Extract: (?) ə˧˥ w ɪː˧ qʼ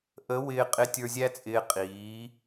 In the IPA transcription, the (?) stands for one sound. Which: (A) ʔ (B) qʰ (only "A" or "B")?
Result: A